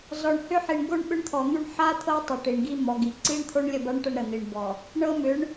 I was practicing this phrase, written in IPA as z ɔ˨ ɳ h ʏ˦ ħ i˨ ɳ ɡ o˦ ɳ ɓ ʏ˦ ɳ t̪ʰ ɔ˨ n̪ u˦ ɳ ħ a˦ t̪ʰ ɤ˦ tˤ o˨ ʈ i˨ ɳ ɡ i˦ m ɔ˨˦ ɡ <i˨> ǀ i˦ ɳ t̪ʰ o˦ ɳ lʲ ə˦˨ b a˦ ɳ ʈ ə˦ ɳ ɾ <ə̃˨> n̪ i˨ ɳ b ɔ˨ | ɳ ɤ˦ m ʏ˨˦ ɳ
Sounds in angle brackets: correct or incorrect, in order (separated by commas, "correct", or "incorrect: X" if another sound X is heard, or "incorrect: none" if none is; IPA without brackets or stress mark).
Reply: correct, incorrect: ə˨